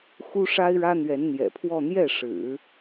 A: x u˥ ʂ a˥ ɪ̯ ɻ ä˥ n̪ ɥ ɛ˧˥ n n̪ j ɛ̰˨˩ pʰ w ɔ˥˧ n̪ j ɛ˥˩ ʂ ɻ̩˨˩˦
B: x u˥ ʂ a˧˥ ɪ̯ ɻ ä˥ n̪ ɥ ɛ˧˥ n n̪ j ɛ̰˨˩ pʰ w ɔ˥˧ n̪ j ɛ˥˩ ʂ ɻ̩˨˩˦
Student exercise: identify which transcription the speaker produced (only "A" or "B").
A